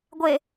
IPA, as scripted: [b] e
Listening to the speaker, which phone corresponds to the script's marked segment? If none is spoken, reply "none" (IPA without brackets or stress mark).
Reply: ɡʷ